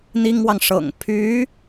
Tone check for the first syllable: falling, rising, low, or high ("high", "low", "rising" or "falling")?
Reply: high